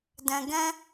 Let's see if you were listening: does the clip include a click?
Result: no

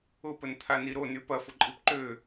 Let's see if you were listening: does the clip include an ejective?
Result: yes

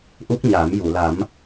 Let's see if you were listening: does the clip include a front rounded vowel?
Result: no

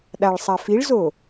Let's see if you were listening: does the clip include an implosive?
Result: yes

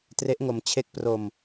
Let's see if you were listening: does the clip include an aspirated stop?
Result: yes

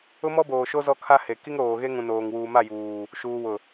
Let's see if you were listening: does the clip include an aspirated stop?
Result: yes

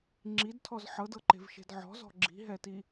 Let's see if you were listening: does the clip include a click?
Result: yes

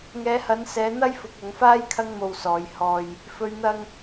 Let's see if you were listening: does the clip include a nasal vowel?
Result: no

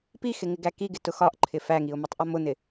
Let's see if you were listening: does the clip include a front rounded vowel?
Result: no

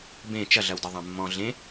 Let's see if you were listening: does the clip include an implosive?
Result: no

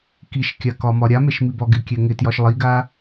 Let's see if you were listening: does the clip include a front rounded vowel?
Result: no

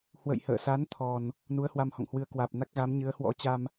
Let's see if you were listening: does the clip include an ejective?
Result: no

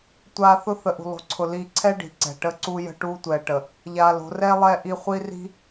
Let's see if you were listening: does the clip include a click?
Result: yes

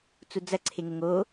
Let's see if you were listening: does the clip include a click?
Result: yes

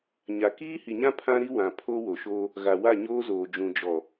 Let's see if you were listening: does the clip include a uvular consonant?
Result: no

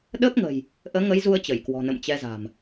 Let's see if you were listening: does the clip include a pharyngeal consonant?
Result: no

